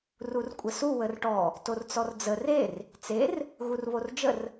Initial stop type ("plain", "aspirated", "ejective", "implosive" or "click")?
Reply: ejective